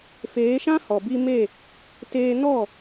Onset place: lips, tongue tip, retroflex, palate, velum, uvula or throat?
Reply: lips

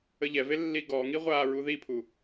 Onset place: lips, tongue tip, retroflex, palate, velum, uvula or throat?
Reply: palate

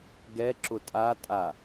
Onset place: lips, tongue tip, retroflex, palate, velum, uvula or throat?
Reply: velum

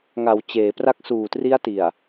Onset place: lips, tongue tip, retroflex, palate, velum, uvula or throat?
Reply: velum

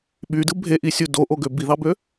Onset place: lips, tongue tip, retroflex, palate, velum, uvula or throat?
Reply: lips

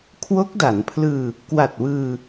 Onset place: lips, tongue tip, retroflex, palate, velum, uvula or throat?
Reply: velum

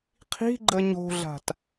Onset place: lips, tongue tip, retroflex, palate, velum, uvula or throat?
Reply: uvula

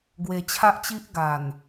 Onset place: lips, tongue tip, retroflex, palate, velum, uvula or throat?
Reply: velum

